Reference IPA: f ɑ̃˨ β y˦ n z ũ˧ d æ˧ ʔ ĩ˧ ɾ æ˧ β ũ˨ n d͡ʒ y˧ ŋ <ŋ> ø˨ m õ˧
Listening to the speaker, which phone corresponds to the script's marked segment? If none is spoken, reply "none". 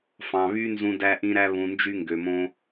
ɡ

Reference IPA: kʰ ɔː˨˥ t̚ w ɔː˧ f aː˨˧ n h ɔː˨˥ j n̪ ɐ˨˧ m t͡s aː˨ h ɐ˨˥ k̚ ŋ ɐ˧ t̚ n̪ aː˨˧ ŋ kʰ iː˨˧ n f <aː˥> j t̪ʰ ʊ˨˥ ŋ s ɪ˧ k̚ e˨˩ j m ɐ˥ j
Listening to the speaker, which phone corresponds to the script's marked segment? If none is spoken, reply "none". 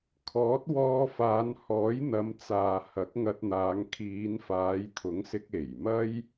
aː˨˧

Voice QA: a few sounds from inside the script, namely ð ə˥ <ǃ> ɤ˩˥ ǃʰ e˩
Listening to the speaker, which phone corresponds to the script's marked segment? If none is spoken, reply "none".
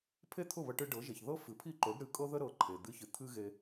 ɾ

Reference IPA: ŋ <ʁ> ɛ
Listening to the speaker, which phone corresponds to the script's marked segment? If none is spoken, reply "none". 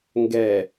ɡ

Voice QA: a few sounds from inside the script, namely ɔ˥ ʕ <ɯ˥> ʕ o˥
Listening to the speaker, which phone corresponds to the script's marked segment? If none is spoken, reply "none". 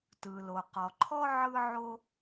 ɯ˥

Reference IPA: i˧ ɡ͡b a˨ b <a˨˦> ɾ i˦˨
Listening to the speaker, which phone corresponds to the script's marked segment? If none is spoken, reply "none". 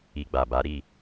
a˨˦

